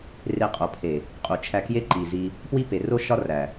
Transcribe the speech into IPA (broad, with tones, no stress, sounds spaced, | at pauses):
r e˧ qʼ o˨ pʰ e˨ | qʼ u˨ t͡ʃʰ æ˧ k j e˦ ǃ i˨ z i˧ | p w i˦ p e˨ r o˦ ʃ ɒ˦ r æ˨